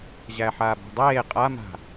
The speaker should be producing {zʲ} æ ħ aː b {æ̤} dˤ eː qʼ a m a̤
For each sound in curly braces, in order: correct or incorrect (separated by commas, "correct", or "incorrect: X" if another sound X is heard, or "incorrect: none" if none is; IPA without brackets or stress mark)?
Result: incorrect: ʑ, correct